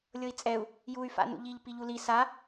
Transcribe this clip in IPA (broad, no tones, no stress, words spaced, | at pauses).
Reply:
lʲɤi̯t͡sʼɛu̯ | juy̯ fa̰nṵʎiʎ piʎuli sa